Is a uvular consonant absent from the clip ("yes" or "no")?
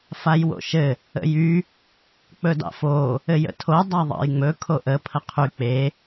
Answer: no